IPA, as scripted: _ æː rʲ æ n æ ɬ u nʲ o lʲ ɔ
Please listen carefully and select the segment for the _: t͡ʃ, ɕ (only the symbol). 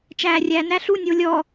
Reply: t͡ʃ